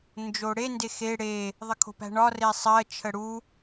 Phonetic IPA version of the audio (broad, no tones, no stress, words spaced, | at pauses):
nd͡ʒoɽe ndexe ɽe | ðˤəkʰo̤pæ̤ɳɒ resˤɜ t͡ʃʰəɽu